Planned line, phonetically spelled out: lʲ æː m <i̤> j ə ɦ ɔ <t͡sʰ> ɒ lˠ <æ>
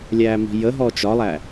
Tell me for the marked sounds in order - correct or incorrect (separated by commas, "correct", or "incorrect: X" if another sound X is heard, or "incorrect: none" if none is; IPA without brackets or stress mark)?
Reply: correct, incorrect: t͡ʃ, correct